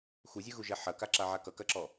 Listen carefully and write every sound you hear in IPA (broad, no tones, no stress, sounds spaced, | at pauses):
x u zʲ ɯ ɣ u ʒ ɛ ħ ɐ k a ǁ a ʕ a k ʌ k ɐ ǁ ɔ